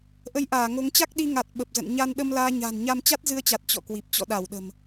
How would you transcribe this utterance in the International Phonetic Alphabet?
ʔ ə˧ j ʔ aː˧˩ ŋ o˨˦ ŋ t͡ɕ a˦˥ k̚ ɗ i˧ ŋ a˨˩ t̚ ɓ ə˨˩ p̚ z ə̰˧˨ n ɲ a˧ n ɗ ə˧ m l aː˧ ɲ a̤ː˨˩ n ɲ a˧ m t͡ɕ a˦˥ t̚ z ɨ˧ ə̯ t͡ɕ a˨˩ t̚ t͡ɕ ɔ̰˧˨ k w i˨˩ p̚ t͡ɕ ɔ̰˧˨ ɗ a˧˩ w ɗ ə̤˨˩ m

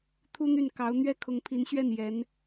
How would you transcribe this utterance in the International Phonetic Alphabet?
t̪ʰ u˥ n̪ y˥˩ n k ɑ˧˥ ʊ̯ n̪ ɥ ɛ˥˩ kʰ ʊ˧˥ ŋ pʰ i˧˥ n ɕ ɥ ɛ˥˩ n j ɛ˧˥ n

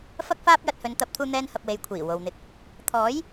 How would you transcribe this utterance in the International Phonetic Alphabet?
f ɐ˥ k̚ f aː˥ p̚ j ɐ˧ t̚ h ɵ˨˧ n t̪ ɐ˨˥ p̚ t̪ʰ uː˧ n̪ ɛː˧ n h ɐ˧ p̚ w e˨ j kʷʰ iː˨˩ w o˨ w n̪ ɪ˧ k̚ | t̪ʰ ɔː˨˥ j

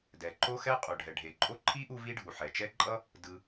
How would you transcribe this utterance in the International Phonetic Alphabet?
d ɛ˩ ǃ o˥ x ɛ˥ qʼ u˩ ɖʱ ɛ˩ ɖʱ e˩ ǃʼ o˥ ǃʰ i˥ ʔ u˥ v i˥ ɖʱ u˩ ħ ɛ˩ t͡ʃ ɛ˥ ǃʼ ʌ˥ | d ɯ˩

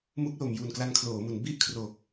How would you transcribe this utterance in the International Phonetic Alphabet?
m u˦˥ k̚ l o˨˩ m j u˨˩ n k l a˧ n kʰ l oː˩˦ m u˩˦ n b i˥˩ ʔ kʰ r o˨˩ k̚

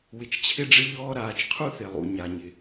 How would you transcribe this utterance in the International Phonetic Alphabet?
w ɪ˨ t͡ʃ t͡ɕʰ ɪ˦ ɖ͡ʐ ɪ˦ ʎ ɔː˦ ɾ aː˨ t͡ʃ qʰ u˦ θ e˨ lˠ ṵ˨ ɲ a˨ ɲ ɪ˨

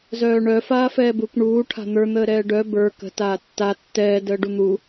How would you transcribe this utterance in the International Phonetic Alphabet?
z œː ɳ œ f aː f ɛː b u k ɳ uː ʈʰ a̤ n̪ ə˞ n̪ əː ɾ ɛː ɖ œ b ə˞ k ə̤ t aː tː a tː ɛː d əː ɖ u n̪ u

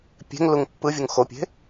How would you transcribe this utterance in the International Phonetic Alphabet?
pʲ e̤ ŋ l u ŋ pː ɯ vʲ u ŋ x o pʲ e̤

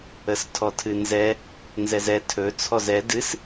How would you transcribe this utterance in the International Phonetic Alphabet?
ə s tʰ ɔ tʰ ɨ n z ɛ | n z ɛ z ɛ tʰ ɵ t͡sʰ ɔ z ɛ d ɨ s

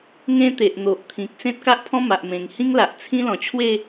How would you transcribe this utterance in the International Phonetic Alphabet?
ŋ ẽ˦ t̪ e˨ ʔ n̪ o˨ ʔ t̪ʰ ĩ˨ k̚ s ẽ˦ t̚ k a˦ ʔ pʰ ɔ̃˦ m a˨ ʔ m ẽ˨˩ ŋ h ĩ˦ ŋ l a˨ ʔ t͡sʰ ĩ˦ l ɔ̃˨˩ t͡ɕʰ w e˥˧

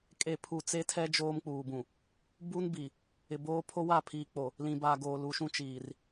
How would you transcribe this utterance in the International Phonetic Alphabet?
kʼ e˦˨ pʰ u˦˨ t͡s e˦ tʰ ɛ˦ d͡ʒ oː˦ m k͡p uː˨ b ũ˨ | b u˦ n b i˨ | ɪ˨ b oː˦ pʰ o˦ w a˦˨ pʰ iː˨ k͡p o˨ | l ĩ˨ b a˨ ɡ oː˨ l u˨ ʃ ũ˦ t͡ʃ iː˨ r

